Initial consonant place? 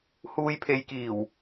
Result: glottal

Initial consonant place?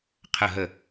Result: uvular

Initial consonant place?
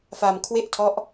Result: labial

